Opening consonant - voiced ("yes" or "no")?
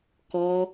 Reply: no